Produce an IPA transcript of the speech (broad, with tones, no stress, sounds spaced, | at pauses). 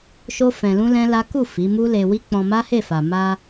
ʃ o˦ f ɛ̃˧ l ũ˦ l ɛ̃˦ l a˦ k u˦˨ f i˨˦ m u˦ l e˧ w i˦ k͡p ɔ̃˧ m a˦ h e˦˨ f a˨ m a˧